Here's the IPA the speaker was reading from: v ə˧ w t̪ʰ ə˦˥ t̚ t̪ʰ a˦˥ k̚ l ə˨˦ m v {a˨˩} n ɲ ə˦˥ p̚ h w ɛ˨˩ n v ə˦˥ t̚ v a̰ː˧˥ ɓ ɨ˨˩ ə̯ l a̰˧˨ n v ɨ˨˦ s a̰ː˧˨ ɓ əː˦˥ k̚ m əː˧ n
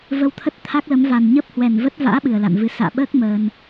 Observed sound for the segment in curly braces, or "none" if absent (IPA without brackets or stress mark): a˨˩